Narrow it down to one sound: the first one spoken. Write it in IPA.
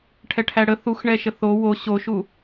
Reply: ʈʰ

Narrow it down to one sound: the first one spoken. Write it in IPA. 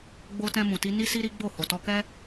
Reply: ɡ͡b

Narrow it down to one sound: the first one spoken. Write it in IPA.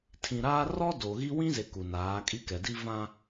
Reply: tʰ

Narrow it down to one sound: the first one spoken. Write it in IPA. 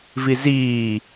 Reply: v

